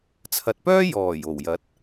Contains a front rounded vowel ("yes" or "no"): yes